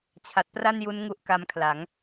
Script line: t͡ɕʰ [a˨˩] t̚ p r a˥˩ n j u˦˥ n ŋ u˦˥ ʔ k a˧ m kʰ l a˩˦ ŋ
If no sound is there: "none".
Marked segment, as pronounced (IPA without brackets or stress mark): a˨˩